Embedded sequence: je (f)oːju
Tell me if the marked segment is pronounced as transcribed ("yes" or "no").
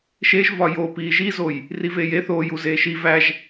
no